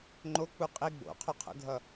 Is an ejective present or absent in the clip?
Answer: present